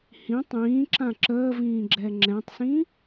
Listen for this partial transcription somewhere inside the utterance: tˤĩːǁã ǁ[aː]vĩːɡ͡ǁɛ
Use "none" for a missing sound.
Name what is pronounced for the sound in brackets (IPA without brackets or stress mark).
əː